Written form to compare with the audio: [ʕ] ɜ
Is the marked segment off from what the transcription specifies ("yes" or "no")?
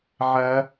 no